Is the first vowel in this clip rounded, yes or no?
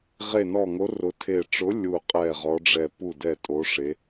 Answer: no